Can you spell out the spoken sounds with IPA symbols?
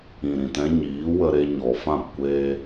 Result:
ĩ˨ɾĩ˨tɛ̃˦ ɲiː˨˦wə˧ ɾe˧ɲɔ˨fã˦˨pkʷeː˦

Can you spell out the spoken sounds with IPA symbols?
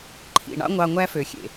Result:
ǃʰḭ˨ɳɑ̰˦ ŋʷɑ˧ŋʷæ˦fø˨xʲḛ˨

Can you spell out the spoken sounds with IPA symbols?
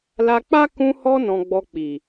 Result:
la˧k͡pa˦ kũ˧hɔ˧ nɔ̃˧ɡ͡bɔ˧k͡pi˨

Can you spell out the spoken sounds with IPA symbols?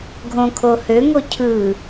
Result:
ɡʱõkʰo høŋo cʰɯ

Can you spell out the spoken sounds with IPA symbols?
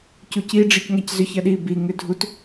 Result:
cuci ɖ͡ʐicŋaczʏç ɐɗi bi ŋʏdʱut

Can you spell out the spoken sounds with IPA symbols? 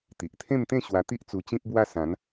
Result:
t̪i˨ʔt̪ʰẽ˥˧mt̪ẽ˥˧ ɕwa˧t̪i˦ʔ t͡su˧t͡ɕĩ˦p̚bwa˥˧ sã˨˦n

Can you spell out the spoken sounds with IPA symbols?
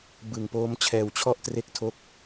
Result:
bɯ˨˩ŋpoː˦˥mt͡ɕʰɛː˧wt͡ɕʰɔ˥˩ʔ tre˥˩k̚tʰo˥˩k̚

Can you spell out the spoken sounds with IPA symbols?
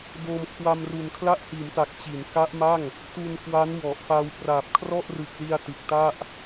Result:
doː˧m kʰwa˧mru˨˩n kʰla˦˥ʔhiː˩˦mta˨˩k̚ t͡ɕi˩˦n ka˦˥ʔma˥˩ŋ | tu˧nkwa˦˥n wɔ˨˩ʔfa˧w praː˨˩p̚kʰrɔ˥˩ʔrɯ˨˩k̚li˧a̯ tɯ˨˩k̚ta˥˩ʔ

